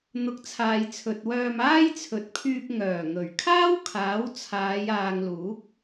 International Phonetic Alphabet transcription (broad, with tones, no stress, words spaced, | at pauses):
n̪ʊ˨˥k̚t͡sʰaː˨jt͡sʰɵ˨t̚wœː˧m aː˥jt͡sʰɵ˨˥t̚pʰyː˧p̚ ŋœː˨˩ŋɵ˨˩ɥkʰaː˥wkʰaː˨˥w t͡sʰaː˨˧jaː˨ŋluː˨˥k̚